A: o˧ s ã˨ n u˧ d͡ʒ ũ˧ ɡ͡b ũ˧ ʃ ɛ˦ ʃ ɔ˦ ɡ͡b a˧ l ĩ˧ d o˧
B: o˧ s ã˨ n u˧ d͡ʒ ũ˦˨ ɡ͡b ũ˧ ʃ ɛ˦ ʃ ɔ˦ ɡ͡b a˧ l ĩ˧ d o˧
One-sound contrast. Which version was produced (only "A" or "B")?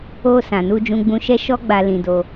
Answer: A